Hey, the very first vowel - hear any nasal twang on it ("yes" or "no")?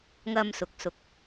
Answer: no